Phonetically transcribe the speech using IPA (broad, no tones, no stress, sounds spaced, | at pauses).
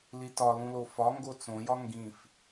l i t ɒ l ũ l o f ɒ ŋ ɡ o t͡s õ j ɒ ŋ ɡ ĩ f